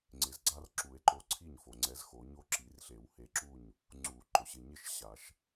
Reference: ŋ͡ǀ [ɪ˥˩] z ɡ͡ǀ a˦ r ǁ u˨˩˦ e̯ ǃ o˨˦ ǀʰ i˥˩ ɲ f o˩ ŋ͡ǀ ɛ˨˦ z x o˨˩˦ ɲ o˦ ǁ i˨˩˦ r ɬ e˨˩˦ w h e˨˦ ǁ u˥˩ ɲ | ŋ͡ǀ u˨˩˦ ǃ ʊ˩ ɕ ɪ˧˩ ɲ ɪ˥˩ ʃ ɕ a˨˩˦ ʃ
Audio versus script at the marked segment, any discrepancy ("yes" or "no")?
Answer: yes